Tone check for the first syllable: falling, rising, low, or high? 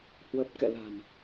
low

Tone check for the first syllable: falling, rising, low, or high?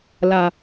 low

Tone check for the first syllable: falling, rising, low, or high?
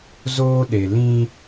high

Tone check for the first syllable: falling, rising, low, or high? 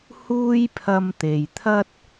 high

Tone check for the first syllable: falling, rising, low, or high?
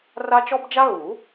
high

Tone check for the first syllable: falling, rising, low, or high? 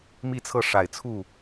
falling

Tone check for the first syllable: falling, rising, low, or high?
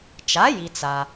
rising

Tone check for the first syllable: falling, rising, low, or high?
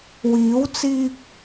rising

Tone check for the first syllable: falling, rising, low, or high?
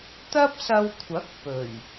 high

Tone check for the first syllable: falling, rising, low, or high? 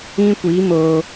high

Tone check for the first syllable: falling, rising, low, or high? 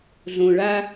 low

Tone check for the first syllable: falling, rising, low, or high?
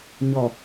low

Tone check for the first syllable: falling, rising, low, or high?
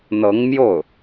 rising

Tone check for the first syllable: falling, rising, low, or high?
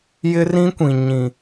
high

